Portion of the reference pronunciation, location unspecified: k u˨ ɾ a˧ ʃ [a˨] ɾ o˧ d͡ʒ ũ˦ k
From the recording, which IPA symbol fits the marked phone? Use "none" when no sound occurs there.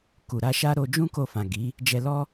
a˦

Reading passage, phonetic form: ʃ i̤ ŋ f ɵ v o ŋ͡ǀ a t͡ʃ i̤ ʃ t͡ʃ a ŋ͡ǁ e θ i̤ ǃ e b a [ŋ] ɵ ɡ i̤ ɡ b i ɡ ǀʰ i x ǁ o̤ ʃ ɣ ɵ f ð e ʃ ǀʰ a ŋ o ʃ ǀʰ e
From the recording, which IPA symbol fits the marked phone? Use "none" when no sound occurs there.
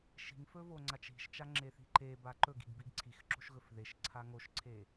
ǃ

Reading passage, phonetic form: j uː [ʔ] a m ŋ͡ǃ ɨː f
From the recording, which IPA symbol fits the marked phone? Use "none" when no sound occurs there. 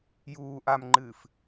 ʔ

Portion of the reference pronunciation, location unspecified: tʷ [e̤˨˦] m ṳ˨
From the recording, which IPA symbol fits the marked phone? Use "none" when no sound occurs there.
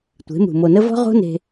e̤˨˦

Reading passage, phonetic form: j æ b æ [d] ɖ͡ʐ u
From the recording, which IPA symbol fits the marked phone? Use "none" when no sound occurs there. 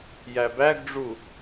ɡ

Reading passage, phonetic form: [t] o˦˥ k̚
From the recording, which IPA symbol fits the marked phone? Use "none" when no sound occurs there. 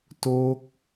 t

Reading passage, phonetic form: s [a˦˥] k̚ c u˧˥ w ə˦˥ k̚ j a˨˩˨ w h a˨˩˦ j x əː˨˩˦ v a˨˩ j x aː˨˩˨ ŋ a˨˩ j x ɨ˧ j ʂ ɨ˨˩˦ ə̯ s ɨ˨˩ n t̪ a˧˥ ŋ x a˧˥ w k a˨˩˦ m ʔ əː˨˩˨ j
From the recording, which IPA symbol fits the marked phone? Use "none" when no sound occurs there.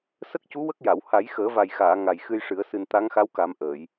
ə˦˥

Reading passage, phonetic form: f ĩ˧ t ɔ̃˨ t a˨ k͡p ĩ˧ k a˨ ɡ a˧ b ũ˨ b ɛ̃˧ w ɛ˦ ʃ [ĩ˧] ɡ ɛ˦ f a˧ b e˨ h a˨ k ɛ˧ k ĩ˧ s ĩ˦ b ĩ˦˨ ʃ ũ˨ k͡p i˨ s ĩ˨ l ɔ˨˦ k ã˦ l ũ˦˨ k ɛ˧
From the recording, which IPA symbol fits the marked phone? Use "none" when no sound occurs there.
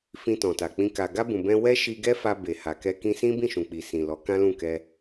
i˧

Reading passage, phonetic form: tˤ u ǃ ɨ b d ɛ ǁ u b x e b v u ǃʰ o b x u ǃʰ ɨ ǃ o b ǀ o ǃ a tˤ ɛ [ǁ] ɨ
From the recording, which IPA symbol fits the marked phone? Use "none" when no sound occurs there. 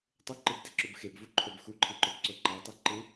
ǃ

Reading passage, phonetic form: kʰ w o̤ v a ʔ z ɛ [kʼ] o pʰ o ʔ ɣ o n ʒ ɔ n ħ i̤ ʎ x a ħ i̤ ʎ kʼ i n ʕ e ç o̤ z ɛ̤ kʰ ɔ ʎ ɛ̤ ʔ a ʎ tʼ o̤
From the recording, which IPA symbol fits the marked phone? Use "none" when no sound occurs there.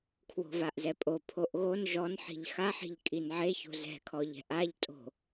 pʼ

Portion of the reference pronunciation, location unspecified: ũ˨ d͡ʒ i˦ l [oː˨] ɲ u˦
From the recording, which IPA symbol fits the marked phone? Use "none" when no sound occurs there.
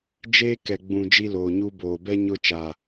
oː˨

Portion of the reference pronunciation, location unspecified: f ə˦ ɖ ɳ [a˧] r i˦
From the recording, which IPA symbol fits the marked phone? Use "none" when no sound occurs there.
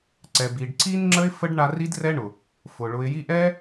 a˧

